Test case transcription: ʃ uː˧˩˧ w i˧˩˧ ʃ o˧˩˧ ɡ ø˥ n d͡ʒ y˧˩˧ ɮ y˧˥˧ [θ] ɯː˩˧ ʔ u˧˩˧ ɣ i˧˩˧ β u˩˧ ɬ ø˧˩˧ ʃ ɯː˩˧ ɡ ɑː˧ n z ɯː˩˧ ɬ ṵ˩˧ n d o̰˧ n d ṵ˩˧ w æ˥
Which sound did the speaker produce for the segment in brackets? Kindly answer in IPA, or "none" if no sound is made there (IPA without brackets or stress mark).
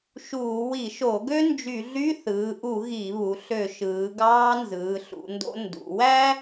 θ